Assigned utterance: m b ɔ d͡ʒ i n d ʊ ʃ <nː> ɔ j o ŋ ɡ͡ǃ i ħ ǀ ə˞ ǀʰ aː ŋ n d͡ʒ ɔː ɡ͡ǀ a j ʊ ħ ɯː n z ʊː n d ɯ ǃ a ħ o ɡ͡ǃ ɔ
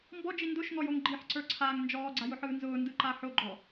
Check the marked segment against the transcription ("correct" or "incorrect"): incorrect